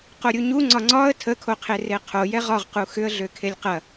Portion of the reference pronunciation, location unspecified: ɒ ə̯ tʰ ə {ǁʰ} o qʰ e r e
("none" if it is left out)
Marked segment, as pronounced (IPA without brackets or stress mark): kʰ